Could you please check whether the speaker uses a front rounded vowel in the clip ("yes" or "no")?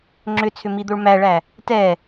yes